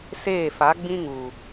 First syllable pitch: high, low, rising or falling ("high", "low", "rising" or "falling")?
falling